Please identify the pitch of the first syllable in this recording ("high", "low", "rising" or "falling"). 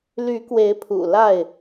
rising